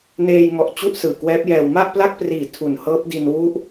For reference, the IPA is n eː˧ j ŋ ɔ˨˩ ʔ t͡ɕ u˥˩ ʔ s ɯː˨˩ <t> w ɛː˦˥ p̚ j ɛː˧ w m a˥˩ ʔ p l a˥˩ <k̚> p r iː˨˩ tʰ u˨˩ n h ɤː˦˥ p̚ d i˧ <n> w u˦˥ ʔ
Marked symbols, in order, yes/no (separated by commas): no, yes, yes